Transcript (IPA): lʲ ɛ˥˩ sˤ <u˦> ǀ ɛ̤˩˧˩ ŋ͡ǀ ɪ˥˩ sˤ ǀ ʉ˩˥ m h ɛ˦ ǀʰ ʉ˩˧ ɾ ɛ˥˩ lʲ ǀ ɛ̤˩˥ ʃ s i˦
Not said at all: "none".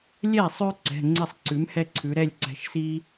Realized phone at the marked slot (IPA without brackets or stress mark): ʉ˦